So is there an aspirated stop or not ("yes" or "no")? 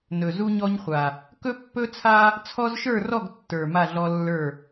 yes